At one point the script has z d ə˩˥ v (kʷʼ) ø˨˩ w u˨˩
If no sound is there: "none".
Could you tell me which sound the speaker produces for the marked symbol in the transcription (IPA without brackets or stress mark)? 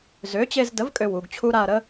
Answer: kʼ